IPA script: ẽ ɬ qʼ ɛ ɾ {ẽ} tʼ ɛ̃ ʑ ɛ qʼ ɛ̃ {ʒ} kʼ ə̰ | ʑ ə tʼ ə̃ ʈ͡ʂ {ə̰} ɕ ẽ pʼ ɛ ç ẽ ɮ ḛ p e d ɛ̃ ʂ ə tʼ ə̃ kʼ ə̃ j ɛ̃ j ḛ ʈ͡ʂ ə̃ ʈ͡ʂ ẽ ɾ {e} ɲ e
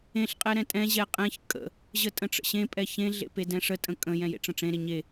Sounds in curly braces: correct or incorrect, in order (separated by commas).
incorrect, incorrect, correct, correct